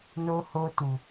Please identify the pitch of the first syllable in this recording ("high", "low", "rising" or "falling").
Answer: high